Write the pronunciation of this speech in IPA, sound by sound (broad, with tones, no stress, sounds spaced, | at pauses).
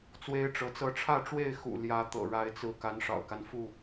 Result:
t͡s w e˦ ɪ̯ ʈ͡ʂ ɤ˨˦ t͡s ɤ˦ ʈ͡ʂʰ ä˥˨ ʈ͡ʂ w e˥˨ ɪ̯ x ṵ˨˩ l j ä˨˦ t̪ ɤ̰˨˩ ɻ a˨˦ ɪ̯ t͡s ɹ̩˨˦ k a˨˦ n ʂ ɑ̰˨˩ ʊ̯ k a˦ n f u˥˨